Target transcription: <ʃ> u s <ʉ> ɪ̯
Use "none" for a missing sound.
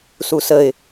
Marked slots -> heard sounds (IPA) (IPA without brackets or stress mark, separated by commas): s, ə